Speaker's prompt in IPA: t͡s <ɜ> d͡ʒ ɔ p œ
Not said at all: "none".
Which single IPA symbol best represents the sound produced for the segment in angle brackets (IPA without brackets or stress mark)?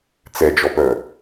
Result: ɛ